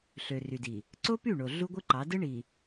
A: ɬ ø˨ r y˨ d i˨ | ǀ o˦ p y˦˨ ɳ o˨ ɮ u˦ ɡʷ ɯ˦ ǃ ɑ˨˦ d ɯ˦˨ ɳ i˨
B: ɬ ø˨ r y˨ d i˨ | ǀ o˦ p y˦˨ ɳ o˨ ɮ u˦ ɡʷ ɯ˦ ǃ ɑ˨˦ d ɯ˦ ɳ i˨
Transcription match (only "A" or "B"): B